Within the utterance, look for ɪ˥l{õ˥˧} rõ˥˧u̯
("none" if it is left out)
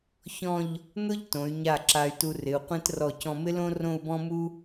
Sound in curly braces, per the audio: õ˥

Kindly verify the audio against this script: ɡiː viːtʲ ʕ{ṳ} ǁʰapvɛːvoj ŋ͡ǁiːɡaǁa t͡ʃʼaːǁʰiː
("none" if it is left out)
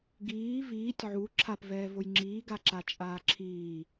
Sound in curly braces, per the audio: u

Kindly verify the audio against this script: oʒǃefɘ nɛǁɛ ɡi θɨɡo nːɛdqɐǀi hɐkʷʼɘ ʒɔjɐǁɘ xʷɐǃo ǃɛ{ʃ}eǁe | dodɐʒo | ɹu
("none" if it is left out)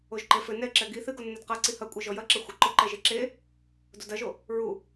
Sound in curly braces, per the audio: ʒ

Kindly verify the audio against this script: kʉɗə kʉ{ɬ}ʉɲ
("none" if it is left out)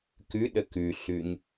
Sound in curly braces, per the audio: ɬ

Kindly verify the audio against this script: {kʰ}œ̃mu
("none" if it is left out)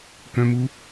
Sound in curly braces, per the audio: k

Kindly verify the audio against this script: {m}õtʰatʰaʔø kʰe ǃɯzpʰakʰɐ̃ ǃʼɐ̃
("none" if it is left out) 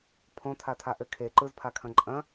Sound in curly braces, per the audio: pʰ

